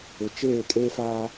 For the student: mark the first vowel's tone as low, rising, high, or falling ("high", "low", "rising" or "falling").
low